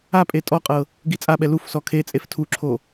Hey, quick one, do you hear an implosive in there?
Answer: yes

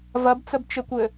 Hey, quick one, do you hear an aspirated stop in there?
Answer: no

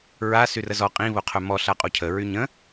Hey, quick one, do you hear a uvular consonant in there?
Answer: yes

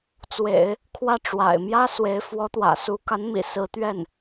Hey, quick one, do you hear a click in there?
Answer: no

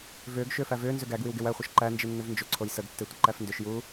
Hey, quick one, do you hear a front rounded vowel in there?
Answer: yes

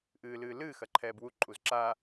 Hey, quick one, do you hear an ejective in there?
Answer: yes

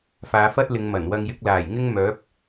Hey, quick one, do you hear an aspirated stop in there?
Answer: no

